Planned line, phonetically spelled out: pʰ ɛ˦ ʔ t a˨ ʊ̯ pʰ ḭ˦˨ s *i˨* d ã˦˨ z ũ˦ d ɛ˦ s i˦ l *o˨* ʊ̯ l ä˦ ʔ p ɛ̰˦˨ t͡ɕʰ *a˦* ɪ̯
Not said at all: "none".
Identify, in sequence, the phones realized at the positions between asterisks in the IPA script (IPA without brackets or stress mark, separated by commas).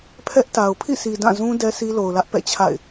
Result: i˨, o˨, a̰˦˨